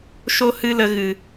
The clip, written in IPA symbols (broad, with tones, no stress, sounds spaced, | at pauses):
ʃ o˦ h ɨ˦ l ə˧ ɣ ɨ˨